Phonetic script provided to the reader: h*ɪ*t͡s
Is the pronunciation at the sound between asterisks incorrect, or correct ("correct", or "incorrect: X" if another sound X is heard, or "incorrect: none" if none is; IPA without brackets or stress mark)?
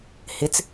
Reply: correct